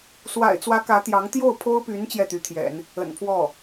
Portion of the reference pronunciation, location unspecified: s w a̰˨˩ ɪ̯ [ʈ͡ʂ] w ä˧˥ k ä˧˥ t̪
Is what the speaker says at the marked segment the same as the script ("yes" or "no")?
no